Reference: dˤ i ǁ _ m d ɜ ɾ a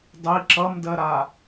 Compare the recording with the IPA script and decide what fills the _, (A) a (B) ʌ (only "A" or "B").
B